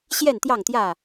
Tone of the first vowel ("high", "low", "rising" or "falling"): falling